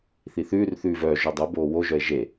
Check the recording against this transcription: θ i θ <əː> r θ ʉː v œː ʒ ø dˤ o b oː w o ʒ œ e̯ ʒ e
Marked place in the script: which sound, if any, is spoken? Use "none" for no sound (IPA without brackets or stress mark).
ʉː